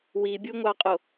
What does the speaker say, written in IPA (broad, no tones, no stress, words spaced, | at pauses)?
wibʲuŋʷɑqʼo